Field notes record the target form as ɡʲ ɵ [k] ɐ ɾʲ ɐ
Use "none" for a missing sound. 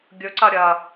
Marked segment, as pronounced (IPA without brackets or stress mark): ǀ